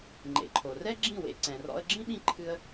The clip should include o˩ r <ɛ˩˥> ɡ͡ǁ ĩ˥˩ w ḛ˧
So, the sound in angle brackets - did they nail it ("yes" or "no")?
no